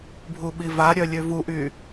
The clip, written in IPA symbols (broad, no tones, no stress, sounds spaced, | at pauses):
bʱ u ɓ i v a ɾʲ œ lʲ ø v u ʔ y